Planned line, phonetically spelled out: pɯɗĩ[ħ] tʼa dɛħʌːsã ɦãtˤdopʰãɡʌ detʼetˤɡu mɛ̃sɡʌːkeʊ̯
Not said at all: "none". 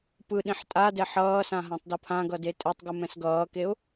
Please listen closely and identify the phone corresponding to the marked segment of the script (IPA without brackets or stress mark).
ħ